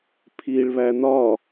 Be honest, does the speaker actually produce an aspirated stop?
yes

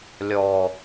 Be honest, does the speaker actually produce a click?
no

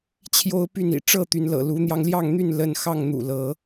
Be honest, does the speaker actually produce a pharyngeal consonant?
no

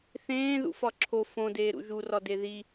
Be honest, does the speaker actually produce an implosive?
no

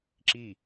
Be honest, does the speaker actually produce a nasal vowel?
no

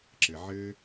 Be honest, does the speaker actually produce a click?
yes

